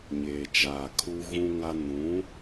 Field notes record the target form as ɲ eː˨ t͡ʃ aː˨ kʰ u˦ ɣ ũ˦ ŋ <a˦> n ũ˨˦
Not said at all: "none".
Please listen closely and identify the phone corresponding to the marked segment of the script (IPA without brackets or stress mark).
a˦